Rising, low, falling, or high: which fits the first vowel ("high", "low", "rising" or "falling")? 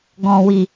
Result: low